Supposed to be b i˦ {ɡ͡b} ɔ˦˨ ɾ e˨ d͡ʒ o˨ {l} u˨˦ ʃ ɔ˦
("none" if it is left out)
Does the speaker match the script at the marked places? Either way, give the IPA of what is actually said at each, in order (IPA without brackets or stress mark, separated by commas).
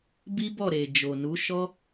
b, n